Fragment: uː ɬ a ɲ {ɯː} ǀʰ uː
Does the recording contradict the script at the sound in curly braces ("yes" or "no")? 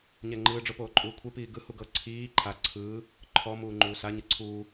yes